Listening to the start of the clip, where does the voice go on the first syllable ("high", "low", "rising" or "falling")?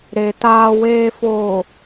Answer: low